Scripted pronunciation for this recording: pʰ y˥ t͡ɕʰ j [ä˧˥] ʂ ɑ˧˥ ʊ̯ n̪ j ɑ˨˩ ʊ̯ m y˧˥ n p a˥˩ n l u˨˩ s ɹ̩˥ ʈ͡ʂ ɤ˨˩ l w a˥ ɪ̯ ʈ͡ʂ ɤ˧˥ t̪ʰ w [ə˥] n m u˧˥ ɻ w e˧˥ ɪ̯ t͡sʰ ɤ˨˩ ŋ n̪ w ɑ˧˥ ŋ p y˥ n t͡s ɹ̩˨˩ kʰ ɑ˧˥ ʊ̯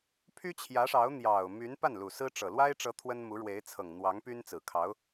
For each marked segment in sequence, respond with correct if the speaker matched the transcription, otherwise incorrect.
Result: correct, correct

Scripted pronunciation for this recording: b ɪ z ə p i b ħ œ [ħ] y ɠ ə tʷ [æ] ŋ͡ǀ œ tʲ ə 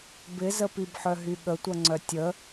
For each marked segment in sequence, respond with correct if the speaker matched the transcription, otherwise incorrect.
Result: incorrect, incorrect

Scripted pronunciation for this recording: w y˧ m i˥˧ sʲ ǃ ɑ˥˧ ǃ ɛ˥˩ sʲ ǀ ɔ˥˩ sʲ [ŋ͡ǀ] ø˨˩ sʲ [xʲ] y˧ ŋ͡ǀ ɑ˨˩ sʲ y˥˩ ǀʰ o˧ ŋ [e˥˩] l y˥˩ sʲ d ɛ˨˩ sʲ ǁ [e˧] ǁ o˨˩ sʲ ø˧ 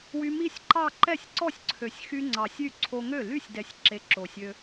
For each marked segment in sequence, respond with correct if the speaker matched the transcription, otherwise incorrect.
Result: incorrect, incorrect, incorrect, correct

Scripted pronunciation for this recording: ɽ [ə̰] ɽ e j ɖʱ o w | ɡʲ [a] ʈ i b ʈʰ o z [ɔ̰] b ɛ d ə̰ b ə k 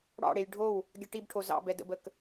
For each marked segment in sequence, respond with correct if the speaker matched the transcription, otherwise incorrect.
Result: incorrect, incorrect, incorrect

